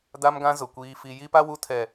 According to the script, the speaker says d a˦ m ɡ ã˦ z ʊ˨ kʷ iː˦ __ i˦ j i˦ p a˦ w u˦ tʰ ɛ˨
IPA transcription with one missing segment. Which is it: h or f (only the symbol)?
f